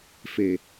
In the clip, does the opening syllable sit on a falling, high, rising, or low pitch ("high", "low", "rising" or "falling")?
low